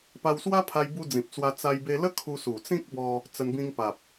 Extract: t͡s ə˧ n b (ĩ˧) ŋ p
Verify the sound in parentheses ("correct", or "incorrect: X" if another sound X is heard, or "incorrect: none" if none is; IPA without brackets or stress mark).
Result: correct